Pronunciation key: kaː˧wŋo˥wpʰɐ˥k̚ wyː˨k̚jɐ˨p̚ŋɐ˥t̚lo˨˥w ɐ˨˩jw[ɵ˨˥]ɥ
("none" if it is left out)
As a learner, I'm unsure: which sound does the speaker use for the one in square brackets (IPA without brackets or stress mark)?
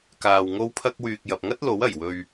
ɵ˧